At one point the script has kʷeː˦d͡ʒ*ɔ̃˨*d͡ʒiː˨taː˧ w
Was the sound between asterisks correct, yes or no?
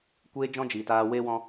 no